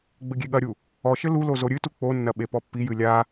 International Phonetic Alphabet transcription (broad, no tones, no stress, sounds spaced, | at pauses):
ɡ͡b ɘ ɡʲ e ɠ ɐ ɾʲ u | ɔ ʃ ɘ l u l o z o ɾʲ ɨ t u k͡p o nː ɐ ɓ e p ɔ pː i j ɨ lʲ a